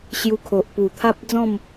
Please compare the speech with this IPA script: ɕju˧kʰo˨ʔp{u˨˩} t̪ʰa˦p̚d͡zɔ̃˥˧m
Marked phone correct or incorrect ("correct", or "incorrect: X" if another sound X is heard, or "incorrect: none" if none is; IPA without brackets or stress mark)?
correct